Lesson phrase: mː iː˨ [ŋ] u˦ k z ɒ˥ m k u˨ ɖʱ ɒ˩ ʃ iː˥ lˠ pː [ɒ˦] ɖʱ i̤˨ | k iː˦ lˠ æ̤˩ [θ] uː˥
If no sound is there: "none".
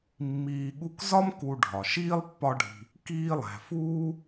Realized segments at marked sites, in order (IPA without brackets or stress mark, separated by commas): ɠ, ɒ˦, f